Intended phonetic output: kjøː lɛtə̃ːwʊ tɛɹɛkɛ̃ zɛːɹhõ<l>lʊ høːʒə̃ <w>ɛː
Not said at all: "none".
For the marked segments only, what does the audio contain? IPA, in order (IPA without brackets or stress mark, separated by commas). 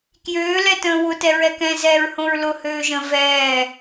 ɹ, v